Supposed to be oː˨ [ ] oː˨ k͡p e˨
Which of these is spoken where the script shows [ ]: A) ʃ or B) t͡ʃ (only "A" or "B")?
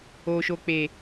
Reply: A